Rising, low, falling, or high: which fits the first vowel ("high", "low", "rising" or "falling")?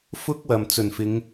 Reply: high